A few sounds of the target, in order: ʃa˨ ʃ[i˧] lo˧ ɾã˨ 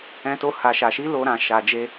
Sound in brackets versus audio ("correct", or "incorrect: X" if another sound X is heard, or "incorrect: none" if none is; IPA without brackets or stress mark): incorrect: i˨˦